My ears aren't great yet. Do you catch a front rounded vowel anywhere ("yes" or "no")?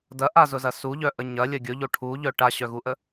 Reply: yes